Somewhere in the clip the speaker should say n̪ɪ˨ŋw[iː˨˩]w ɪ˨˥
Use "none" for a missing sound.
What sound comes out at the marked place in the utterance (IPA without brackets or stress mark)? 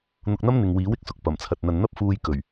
iː˨˥